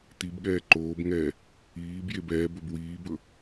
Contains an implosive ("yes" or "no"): yes